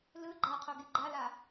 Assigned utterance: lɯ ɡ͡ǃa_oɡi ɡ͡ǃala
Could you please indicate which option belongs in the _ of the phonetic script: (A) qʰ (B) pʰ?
A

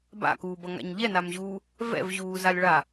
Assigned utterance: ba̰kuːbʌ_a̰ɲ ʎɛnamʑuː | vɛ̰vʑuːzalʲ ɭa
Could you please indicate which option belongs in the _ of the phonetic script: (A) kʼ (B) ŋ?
B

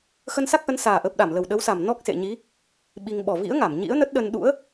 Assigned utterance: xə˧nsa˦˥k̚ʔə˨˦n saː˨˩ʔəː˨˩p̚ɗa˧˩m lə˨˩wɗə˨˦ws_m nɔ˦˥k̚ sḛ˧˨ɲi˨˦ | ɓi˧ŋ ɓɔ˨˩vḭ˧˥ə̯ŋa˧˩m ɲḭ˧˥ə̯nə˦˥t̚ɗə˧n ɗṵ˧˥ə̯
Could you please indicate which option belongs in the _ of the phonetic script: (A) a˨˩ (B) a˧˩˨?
A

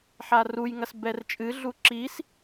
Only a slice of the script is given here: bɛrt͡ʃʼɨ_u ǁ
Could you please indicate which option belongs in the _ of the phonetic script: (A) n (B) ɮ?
B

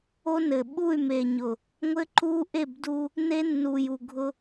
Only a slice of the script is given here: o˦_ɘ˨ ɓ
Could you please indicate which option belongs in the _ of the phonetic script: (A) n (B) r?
A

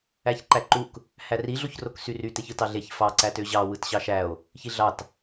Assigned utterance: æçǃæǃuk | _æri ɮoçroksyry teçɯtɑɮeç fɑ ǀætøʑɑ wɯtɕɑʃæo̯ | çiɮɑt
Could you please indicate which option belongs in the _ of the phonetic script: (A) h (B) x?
A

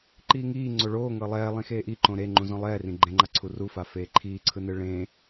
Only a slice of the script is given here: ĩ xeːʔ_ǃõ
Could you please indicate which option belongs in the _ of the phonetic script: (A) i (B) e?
A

